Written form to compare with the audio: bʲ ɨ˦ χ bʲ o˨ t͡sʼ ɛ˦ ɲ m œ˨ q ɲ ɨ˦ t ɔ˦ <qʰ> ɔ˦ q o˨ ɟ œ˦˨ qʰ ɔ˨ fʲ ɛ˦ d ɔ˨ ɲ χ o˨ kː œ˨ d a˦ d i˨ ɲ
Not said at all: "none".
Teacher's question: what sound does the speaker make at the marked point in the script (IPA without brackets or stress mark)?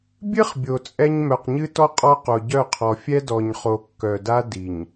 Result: qʼ